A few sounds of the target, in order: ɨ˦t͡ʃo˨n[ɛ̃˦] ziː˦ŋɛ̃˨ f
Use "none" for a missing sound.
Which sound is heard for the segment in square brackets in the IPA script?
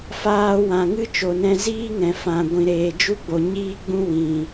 ɛ̃˧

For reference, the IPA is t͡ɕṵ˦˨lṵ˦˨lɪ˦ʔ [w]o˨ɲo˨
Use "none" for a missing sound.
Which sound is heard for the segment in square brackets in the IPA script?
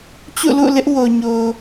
w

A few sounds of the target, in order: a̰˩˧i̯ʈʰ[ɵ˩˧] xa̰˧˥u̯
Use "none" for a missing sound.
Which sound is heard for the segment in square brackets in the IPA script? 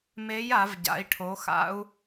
o˩˧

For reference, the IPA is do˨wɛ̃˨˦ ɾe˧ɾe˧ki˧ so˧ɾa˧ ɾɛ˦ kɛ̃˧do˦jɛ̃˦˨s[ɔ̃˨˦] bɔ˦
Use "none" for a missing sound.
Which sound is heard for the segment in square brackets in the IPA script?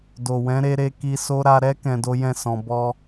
ɔ̃˧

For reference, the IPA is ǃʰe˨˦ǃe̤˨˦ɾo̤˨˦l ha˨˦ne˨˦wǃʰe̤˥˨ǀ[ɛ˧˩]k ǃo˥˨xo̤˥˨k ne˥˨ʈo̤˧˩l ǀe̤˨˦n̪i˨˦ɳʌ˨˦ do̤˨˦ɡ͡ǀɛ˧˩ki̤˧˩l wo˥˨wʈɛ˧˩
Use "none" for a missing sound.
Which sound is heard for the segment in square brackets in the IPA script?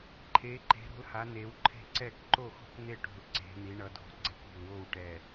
ɛ˥˨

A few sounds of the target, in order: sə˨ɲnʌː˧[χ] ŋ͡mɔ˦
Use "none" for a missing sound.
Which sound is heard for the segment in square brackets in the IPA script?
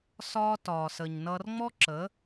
r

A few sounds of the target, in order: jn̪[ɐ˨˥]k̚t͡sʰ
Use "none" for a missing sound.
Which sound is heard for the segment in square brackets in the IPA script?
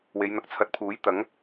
ɐ˧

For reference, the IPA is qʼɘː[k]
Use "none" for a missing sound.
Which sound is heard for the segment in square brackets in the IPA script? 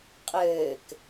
k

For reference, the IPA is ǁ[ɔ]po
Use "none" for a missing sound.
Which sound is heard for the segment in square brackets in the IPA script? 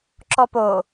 ɔ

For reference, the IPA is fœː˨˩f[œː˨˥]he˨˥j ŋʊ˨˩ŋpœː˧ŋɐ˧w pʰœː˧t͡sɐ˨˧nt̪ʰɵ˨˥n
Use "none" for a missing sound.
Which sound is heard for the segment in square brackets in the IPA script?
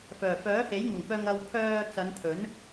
œː˨˥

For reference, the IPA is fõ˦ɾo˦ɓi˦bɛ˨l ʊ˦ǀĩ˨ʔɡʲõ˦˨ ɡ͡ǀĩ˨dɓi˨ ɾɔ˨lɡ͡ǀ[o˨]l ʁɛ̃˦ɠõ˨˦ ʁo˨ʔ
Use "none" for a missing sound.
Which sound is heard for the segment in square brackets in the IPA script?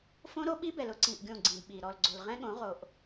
o˨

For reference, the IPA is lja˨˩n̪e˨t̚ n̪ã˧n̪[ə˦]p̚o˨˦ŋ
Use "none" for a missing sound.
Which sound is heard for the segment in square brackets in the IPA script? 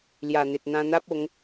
a˦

